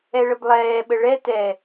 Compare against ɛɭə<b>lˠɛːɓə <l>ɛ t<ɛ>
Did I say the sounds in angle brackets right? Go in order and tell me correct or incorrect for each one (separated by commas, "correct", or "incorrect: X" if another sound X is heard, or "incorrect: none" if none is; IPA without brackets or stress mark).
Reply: correct, incorrect: ɭ, correct